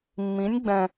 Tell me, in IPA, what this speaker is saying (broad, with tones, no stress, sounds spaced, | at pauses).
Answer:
mː ĩ˧˥ nʲ ɡ͡b ɛ̃˧